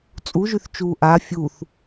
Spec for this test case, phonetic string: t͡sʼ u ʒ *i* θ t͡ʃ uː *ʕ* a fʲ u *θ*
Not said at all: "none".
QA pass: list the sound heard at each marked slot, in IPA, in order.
y, ʔ, θ

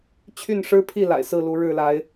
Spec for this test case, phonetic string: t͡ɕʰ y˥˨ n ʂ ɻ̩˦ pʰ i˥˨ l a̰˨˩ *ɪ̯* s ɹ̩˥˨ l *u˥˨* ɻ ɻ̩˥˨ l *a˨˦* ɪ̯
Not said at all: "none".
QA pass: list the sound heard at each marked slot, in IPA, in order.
ɪ̯, u˨˦, a˨˦

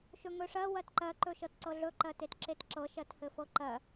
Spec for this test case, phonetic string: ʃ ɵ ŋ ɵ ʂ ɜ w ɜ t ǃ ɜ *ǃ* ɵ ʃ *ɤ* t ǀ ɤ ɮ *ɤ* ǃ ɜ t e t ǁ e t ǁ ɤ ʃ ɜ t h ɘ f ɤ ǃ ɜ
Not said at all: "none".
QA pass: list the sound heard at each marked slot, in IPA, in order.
ǃ, ɤ, ɵ

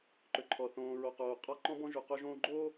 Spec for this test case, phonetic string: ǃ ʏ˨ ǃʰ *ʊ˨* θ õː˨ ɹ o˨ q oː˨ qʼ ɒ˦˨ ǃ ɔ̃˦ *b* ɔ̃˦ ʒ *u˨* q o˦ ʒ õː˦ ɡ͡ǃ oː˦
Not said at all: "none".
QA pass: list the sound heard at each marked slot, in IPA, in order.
ɔ˨, b, u˨

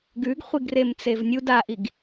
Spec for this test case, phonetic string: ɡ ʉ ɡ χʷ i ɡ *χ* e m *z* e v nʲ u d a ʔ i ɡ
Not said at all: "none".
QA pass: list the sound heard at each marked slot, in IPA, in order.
r, t͡s

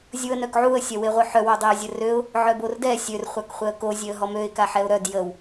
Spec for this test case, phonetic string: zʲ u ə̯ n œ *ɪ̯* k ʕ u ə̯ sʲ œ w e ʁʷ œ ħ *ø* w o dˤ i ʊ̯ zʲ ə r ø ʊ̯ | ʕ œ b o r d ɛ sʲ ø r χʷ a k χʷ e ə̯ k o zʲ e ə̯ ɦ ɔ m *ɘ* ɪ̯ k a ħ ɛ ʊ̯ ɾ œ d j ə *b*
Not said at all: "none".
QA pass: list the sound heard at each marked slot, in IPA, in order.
none, œ, ø, w

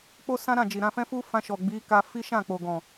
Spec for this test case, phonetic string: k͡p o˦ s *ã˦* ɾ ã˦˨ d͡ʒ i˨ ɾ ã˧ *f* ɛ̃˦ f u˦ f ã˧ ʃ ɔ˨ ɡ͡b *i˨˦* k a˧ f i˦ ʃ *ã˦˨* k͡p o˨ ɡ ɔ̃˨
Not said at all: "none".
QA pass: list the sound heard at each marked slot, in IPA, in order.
ã˦, f, i˨˦, ã˦˨

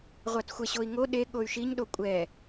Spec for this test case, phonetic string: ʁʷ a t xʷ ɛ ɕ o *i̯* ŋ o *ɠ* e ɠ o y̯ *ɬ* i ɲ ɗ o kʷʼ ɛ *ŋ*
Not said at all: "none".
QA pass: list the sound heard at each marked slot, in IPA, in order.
i̯, ɗ, ʃ, none

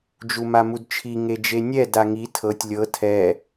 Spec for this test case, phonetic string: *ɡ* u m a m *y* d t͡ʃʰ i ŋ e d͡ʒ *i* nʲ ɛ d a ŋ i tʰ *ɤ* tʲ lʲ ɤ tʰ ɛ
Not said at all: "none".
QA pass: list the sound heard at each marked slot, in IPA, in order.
d͡ʒ, u, e, ɤ

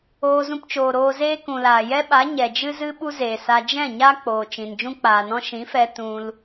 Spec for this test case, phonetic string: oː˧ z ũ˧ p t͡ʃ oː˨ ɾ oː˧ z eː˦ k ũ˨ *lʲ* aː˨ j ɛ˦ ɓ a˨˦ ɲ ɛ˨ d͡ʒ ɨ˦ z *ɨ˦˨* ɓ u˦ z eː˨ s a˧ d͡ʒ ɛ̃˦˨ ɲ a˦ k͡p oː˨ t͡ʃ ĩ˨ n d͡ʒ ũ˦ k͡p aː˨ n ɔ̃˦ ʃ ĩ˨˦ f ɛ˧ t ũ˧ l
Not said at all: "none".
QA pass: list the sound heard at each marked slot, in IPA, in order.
l, ɨ˦

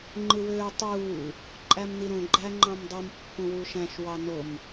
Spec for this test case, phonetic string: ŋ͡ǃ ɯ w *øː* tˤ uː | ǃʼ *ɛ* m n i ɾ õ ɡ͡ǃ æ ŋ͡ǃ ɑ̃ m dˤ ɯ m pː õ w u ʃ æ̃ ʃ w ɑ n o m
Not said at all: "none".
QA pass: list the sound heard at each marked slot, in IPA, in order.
øː, æ

